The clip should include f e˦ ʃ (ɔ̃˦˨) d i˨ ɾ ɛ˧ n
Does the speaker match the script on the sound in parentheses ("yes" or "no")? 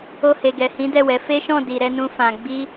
yes